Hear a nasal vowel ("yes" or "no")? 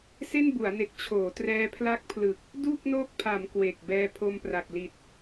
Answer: no